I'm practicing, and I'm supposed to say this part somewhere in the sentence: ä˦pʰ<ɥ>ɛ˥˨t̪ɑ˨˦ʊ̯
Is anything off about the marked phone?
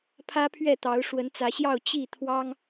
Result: no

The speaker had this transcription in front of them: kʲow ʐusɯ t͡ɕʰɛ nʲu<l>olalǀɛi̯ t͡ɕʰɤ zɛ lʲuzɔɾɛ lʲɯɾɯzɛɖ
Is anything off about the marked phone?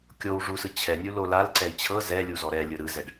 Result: no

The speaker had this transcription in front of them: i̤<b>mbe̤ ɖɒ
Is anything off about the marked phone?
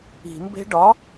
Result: yes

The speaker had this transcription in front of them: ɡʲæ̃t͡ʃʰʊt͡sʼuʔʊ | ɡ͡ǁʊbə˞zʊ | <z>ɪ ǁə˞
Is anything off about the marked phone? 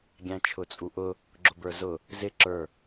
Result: no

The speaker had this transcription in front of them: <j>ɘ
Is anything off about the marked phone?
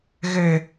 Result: yes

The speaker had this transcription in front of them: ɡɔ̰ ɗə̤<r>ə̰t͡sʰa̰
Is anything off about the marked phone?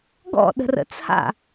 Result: no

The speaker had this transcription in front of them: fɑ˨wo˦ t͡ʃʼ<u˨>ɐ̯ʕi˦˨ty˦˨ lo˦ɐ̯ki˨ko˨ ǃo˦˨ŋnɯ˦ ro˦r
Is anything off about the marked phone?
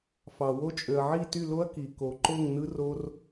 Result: yes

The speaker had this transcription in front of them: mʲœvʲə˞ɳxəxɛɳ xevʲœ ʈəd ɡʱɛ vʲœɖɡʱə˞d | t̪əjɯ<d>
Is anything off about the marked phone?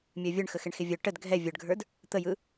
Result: yes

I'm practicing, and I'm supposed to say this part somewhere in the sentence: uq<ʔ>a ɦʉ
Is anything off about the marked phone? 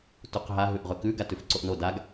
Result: yes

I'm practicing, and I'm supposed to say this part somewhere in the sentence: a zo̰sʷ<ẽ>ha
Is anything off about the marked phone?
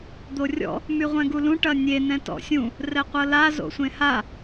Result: no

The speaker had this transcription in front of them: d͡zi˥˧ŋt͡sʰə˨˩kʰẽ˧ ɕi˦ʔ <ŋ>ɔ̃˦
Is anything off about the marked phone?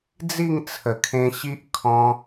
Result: yes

